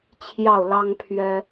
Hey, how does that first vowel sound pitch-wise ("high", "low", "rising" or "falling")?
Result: falling